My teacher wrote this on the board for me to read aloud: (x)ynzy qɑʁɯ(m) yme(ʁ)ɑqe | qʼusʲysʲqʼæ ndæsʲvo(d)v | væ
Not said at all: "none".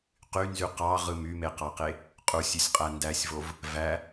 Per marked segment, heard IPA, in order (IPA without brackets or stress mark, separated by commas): q, m, q, none